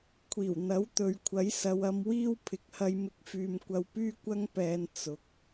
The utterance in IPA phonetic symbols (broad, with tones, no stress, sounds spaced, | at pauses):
kʷʰ iː˨˩ w n̪ ɐ˨˥ w t̪ ɵ˨˧ ɥ kʷʰ ɐ˨˥ j s ɐ˨˧ w ɐ˧ m w iː˥ w pʰ ɪ˨˥ k̚ h ɐ˧ j m ɪ˧ k̚ f yː˨ m kʷ ɐ˧ w p yː˥ kʷ ɐ˥ ŋ p ɛː˧ n t͡s ʊ˨˥ k̚